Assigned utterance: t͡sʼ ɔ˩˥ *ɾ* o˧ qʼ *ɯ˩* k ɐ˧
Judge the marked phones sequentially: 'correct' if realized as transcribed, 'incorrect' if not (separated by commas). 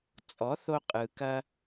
incorrect, correct